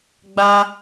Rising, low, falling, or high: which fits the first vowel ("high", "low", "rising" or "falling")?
high